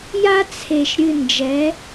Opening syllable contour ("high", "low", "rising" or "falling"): high